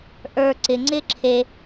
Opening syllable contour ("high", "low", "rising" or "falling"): low